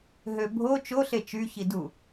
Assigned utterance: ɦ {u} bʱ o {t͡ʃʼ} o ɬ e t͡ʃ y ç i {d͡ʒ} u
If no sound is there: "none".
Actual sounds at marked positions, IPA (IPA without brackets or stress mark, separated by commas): ø, t͡ʃ, d